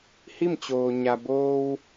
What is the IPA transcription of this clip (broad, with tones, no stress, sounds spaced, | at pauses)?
h i˥˨ m t͡ɕ oː˩ ɲ a˩ b oː˧ w